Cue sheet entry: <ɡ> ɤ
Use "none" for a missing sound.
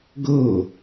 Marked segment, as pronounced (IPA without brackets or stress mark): ɡ